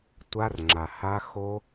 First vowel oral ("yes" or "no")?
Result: yes